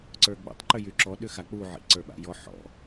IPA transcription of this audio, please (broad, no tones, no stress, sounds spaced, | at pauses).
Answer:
ǀ ə˞ ɡ͡b ṵ tˤ ǃ ʏ j y ǁ ɔ ɗ ʏ x a k͡p u ʕ ḭ ǀ ə˞ ɓ a̰ j ɔ ħ ɔ̰